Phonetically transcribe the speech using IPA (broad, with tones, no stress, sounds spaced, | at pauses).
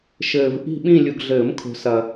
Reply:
ʃ ɘː˨ v ʔ i̤˦˨ ɓ ĩ˦˨ lʲ u˨ ɡ ɮ ɘː˨˩˦ m kʰ o̤˨ s ɐ˨